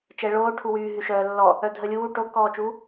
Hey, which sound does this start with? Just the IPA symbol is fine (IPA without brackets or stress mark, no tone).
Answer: t͡ʃ